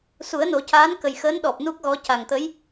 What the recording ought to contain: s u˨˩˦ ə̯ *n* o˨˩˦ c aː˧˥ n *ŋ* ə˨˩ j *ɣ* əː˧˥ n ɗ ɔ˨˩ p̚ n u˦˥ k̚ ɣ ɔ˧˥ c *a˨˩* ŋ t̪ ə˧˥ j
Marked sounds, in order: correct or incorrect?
correct, incorrect: k, incorrect: x, correct

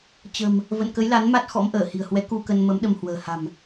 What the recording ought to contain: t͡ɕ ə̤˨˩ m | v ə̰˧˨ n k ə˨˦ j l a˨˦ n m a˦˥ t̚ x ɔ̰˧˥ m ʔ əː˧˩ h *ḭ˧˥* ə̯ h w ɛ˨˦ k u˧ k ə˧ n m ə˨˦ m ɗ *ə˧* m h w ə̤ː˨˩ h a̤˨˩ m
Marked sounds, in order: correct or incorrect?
incorrect: i̤˨˩, correct

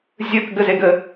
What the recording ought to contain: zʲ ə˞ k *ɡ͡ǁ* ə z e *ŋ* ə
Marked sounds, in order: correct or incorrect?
incorrect: ɡ, incorrect: ɡ

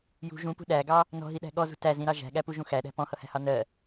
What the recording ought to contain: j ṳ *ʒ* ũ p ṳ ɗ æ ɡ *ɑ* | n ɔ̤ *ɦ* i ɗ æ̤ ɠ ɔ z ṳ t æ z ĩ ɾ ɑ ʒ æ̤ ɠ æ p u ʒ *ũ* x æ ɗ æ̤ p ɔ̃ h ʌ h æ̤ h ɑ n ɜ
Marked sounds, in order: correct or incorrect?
correct, correct, correct, correct

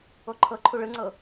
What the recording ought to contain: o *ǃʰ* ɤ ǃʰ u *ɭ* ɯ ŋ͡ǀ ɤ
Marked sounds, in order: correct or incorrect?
correct, correct

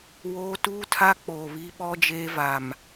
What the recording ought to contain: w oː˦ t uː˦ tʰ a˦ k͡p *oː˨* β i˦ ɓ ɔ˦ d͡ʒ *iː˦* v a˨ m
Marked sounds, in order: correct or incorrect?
correct, incorrect: eː˦

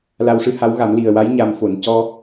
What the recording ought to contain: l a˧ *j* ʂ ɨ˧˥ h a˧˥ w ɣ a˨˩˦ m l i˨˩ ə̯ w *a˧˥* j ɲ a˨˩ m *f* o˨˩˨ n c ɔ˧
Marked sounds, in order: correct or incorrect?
incorrect: w, correct, correct

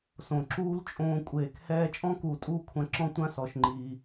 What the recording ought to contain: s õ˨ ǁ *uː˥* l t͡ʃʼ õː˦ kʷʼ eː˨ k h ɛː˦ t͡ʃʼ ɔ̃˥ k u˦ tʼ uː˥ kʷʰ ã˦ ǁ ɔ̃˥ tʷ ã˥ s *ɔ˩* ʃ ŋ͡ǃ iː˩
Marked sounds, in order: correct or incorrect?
correct, correct

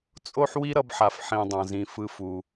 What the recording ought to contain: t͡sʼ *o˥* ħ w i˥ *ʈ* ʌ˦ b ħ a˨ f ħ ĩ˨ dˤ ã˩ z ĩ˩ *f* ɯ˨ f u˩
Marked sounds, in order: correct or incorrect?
correct, incorrect: ɾ, correct

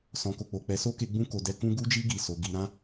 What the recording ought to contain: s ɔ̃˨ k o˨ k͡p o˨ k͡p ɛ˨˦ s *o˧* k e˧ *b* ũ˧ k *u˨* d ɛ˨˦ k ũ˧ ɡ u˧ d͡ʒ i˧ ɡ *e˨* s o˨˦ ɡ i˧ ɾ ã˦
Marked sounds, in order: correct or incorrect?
incorrect: o˦, incorrect: ɡ͡b, incorrect: o˨, incorrect: i˨

